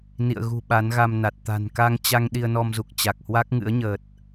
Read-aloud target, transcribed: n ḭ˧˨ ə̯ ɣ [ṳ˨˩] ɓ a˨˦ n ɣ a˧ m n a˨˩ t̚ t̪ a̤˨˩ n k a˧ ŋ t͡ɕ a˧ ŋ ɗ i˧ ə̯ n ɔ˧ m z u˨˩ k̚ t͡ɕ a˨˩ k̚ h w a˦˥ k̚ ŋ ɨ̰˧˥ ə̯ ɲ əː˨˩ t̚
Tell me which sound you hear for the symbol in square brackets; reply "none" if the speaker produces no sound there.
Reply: ṳ˨˩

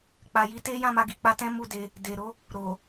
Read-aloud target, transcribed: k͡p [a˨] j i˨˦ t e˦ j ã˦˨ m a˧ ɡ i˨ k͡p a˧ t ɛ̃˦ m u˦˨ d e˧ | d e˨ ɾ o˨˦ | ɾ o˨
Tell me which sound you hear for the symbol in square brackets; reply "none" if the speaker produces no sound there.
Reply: a˨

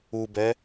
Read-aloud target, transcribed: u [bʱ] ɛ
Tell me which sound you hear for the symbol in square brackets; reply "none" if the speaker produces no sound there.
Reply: b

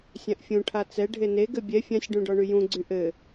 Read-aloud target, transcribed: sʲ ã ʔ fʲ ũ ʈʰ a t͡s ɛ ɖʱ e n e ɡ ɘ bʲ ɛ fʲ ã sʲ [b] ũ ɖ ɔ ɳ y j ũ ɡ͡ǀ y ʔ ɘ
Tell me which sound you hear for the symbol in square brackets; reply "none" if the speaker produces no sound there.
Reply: ɖ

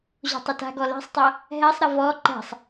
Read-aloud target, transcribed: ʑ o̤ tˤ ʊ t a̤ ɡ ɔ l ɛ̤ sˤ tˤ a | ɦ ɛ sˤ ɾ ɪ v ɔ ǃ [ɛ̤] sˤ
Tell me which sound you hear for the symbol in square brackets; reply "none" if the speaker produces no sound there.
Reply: ɛ̤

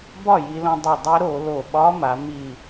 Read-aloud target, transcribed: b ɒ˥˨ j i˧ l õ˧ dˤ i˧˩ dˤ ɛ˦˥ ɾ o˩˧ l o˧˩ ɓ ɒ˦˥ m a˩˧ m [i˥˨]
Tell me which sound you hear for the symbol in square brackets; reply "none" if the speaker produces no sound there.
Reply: i˧˩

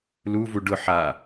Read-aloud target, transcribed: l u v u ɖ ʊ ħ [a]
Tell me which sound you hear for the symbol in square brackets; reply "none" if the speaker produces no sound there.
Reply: a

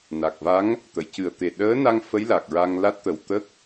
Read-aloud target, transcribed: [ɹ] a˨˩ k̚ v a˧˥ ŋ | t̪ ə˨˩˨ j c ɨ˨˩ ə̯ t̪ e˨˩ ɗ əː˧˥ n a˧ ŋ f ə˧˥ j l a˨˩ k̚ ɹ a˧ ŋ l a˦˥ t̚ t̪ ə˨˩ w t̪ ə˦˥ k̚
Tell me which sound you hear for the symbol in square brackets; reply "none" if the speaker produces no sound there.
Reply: n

